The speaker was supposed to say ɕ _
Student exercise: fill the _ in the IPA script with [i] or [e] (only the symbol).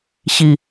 i